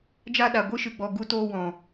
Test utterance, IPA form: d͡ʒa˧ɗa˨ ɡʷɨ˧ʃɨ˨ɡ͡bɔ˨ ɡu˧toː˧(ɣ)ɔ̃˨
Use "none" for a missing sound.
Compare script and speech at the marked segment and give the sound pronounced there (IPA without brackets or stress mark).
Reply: w